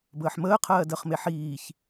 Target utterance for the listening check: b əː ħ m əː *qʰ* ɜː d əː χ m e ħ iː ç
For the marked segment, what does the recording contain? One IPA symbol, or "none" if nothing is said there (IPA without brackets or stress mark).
qʰ